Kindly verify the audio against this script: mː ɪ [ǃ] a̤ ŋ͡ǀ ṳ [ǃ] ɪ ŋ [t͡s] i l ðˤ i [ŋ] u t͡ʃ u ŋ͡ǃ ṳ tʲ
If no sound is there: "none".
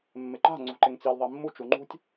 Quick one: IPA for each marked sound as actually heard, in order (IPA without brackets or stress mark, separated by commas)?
ǃ, ǃ, t͡s, mː